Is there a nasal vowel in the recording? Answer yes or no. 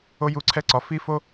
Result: no